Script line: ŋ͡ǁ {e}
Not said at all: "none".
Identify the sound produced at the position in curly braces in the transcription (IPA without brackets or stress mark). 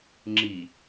i